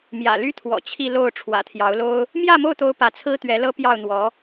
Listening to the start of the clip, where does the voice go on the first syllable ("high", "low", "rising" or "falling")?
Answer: low